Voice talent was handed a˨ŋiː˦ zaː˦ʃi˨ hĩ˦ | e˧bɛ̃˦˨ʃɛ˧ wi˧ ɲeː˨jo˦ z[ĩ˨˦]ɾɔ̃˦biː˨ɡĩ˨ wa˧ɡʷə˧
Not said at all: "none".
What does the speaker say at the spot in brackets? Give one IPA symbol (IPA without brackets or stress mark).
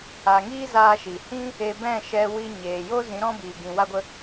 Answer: ĩ˨˦